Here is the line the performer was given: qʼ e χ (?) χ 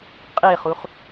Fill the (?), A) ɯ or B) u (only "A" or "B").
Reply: B